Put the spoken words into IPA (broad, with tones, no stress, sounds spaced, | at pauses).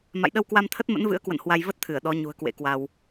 m a̰˧˨ j ɗ ə˧ w k w a˧ m t̪ʰ ə˦˥ t̚ m ə̰˧˥ n v ɨ̰˧˥ ə̯ k w ə̰˧˨ n h w a˧ j v ə˦˥ t̚ t̪ʰ ɨ˧˩ ə̯ ɗ ɔ˨˦ ɲ ṳ˨˩ ə̯ k w ḛ˧˥ k w a˧ w